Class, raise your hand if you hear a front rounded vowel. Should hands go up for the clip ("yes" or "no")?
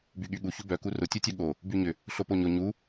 yes